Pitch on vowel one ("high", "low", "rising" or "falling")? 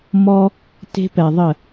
high